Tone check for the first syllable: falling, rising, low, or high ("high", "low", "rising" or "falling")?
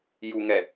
low